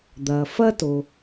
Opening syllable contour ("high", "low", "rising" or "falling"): low